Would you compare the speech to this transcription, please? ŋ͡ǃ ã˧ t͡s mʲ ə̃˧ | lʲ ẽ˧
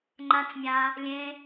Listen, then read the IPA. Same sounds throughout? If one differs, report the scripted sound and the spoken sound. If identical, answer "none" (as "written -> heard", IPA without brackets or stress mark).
ə̃˧ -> ã˧